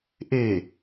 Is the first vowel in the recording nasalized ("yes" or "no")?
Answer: no